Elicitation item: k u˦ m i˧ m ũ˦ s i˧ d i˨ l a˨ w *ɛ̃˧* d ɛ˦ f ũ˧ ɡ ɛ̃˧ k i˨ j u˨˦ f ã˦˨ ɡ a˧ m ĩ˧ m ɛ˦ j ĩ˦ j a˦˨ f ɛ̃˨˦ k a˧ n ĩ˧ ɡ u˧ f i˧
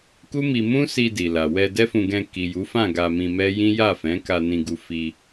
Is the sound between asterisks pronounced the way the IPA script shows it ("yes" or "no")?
no